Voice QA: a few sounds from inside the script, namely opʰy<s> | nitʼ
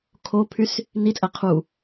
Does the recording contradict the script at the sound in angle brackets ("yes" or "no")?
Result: no